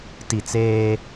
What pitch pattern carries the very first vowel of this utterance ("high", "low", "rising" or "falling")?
falling